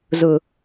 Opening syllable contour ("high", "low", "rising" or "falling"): low